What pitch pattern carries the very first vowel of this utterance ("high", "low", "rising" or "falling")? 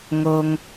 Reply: low